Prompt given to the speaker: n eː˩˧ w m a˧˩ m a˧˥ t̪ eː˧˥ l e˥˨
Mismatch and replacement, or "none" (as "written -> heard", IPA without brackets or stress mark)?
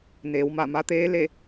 none